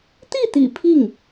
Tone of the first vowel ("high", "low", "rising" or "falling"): falling